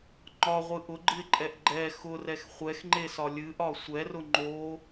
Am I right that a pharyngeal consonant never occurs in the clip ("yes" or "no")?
yes